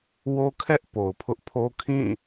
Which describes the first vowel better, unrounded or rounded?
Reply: rounded